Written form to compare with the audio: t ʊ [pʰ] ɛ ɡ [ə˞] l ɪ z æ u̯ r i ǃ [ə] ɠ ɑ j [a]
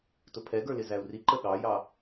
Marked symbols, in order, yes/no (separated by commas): yes, yes, yes, no